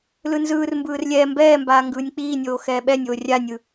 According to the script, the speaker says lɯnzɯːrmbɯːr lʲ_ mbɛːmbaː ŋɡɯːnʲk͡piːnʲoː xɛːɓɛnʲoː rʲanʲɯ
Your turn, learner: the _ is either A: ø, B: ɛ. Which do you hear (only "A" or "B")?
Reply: B